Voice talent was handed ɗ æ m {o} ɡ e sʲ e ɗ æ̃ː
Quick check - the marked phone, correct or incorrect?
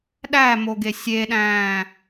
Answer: correct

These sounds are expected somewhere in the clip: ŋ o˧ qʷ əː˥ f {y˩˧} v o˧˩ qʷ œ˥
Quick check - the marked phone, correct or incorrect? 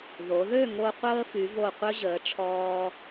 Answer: correct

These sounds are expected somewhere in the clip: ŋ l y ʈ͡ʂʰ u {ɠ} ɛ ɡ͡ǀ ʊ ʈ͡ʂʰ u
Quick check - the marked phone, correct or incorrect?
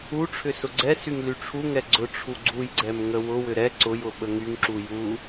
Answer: incorrect: ŋ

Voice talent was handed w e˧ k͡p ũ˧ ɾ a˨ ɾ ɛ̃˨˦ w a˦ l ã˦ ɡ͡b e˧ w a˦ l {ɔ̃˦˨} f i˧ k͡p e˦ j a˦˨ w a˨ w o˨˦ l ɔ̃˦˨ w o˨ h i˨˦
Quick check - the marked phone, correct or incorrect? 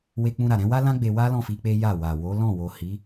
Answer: correct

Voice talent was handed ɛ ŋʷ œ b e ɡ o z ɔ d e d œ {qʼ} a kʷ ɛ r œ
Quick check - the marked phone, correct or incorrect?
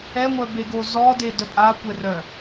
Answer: incorrect: pʼ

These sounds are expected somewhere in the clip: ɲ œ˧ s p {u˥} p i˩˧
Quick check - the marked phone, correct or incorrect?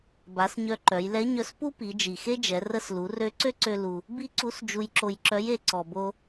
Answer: correct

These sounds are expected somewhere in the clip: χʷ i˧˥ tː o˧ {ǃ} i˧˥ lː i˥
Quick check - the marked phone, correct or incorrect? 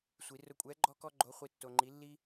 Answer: incorrect: ŋ͡ǃ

